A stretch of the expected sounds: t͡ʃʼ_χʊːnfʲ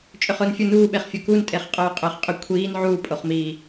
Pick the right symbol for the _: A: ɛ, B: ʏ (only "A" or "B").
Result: B